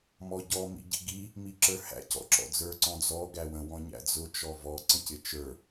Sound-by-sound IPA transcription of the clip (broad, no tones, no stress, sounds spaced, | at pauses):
m ɔ ɟ ɔ m ḭ ɟ ḭ ɡ i | m i ǁ ə˞ h æ̰ c ɔ̰ ǁ ɔ̰ d͡z ə˞ ǀ ɔ̃ d͡z ɔ ɡ æ w ə̃ w ɔ̃ ɲ æ̰ d͡z ʊ t͡ʃ ɔ v ɔ ǀ ə̃ c ɪ t͡ʃ ə˞